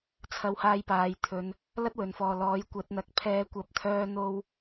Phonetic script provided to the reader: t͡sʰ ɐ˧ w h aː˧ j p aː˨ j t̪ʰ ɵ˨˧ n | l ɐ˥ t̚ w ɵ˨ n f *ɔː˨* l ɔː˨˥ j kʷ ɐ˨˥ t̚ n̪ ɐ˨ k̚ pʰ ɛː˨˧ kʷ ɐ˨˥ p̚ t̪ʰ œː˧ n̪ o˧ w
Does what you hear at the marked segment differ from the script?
no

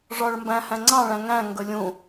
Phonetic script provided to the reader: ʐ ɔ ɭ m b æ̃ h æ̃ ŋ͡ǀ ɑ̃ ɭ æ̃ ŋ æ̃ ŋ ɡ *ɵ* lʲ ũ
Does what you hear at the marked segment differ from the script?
no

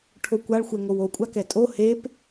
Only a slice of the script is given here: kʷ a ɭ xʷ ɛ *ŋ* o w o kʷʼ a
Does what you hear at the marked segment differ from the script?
no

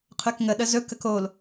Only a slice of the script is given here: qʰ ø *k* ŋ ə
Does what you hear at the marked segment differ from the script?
no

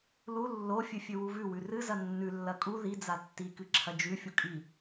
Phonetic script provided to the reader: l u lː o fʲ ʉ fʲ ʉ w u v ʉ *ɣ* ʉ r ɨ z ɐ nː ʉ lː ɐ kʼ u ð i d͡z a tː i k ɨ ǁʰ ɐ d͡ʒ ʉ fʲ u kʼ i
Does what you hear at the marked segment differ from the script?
yes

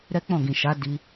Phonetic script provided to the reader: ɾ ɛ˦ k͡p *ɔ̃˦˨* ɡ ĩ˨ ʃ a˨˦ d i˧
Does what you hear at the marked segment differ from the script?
no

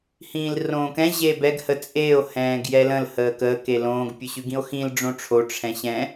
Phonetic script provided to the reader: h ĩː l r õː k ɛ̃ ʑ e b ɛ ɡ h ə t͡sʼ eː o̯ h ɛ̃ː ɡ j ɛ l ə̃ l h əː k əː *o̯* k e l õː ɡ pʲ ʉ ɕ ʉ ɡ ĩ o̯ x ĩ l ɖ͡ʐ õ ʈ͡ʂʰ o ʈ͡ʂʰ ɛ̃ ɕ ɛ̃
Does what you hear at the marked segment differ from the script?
yes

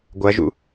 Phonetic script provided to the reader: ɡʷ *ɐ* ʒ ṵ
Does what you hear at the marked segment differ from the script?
no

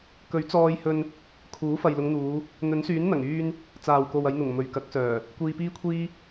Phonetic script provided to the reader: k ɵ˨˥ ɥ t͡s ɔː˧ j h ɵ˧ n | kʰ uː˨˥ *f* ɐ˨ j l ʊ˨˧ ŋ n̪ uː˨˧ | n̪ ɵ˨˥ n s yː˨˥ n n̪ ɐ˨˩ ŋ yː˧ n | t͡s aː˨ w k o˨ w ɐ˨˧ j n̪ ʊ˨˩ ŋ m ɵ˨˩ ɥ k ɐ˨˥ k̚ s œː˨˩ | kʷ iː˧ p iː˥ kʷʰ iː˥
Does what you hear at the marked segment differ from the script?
no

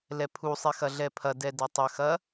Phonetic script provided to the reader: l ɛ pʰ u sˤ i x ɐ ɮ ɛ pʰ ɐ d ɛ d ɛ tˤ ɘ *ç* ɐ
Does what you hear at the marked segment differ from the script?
yes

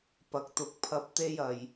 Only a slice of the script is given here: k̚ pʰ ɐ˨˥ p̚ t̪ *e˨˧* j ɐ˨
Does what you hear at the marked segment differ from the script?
yes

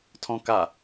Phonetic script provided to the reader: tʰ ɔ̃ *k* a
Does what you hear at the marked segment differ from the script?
no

